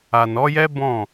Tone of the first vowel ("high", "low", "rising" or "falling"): low